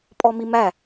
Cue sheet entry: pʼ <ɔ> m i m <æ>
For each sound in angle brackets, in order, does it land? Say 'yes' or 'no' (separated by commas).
yes, yes